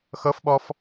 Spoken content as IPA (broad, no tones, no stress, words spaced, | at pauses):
xɤfɓɔf